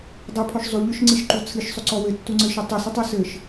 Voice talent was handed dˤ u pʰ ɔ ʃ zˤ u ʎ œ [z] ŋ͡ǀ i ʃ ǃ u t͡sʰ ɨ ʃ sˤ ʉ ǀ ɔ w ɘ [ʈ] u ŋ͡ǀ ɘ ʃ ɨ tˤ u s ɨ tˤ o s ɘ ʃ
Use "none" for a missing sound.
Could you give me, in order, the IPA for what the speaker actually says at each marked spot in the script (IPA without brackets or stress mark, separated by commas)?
ʃ, tː